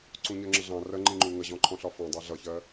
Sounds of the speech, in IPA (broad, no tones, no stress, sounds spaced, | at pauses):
ǀ ũ ɲ ɜ ŋ͡ǁ ə ɮ ɑ̃ r ɜ ŋ͡ǃ ĩ ŋ͡ǃ u ŋ ə ʑ ɔ̃ ǃʰ ɔ̃ ɬ ɒ f ɔ̃ dˤ ɑ ɮ ʌ ç ɜ